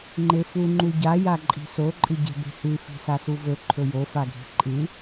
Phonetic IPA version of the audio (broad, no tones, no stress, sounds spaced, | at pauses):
ŋ͡ǃ e f u ŋ͡ǃ u ɟ a j a ǃʼ i̤ s o ǃʼ ɨ ɟ e̤ b e̤ h ʉ f i̤ s a s u v ɵ ǃʰ ɵ j o f a ɡʱ i̤ ǃʼ ɨ